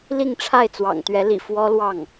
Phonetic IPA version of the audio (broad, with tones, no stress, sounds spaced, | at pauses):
l i˥˧ ŋ ʈ͡ʂʰ a˥˩ ɪ̯ t͡s w ɑ̰˨˩ ŋ t̪ ɥ ɛ˧˥ l ḭ˨˩ f w ɔ˥ l w ɑ˥˩ ŋ